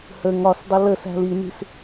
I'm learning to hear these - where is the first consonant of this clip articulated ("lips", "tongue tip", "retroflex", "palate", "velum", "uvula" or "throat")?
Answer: throat